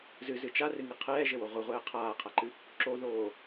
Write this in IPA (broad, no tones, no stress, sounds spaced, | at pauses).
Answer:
z ɨ z ɨ t͡ʃ a r ɨ ŋ ɨ qʰ ɛː ʒ ɘ w o ʁʷ ɨ ʁʷ ɛː qʰ aː qʰ a ǃ ɨ | ǁ o ð oː